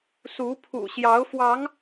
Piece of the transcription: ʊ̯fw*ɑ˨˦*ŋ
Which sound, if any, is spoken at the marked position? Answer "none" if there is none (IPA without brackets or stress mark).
ɑ˨˦